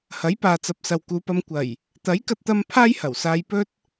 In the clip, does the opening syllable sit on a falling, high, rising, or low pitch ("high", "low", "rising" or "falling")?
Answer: rising